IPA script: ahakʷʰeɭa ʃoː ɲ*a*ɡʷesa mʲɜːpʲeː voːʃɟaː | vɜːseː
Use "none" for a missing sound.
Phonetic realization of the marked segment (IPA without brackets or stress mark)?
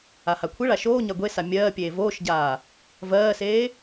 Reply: a